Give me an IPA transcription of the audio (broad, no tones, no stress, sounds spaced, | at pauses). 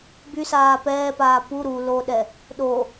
b y s aː p ɛː p aː p u ɾ u l o ɗ ɛ | ɗ o